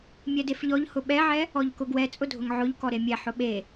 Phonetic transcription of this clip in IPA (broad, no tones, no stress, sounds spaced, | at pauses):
mʲ ɛ d e f ʎ ɔ ʎ h ʊ ɓ ɛ ʕ ɛ | ɔ ʎ k ʊ ɡ w ɛ t͡sʼ ʊ dʱ ʊ ŋ ʕ ʊ ʎ k ɔ ɾ e mʲ ɛ ħ ʊ ɓ e